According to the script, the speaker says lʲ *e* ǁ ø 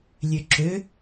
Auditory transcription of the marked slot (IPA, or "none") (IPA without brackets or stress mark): ø